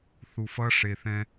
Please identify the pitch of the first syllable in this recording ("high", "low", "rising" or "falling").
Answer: low